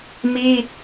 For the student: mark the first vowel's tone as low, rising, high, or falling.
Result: high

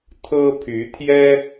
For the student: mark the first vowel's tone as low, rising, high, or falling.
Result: high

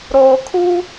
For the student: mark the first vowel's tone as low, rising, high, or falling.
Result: low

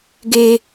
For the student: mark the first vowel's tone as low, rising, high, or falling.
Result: low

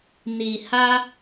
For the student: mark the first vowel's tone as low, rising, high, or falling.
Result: low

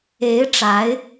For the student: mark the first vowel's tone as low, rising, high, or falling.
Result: rising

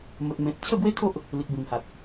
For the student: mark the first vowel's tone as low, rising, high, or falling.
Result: low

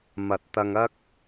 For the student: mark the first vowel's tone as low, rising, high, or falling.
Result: low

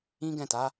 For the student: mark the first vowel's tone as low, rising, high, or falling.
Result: high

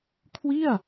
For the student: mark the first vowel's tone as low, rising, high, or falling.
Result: falling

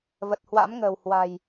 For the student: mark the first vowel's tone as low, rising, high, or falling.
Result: low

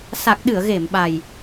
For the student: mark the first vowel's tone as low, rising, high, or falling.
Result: low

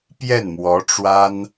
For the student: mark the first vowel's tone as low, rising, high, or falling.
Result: falling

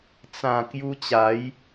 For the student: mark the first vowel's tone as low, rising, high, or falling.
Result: low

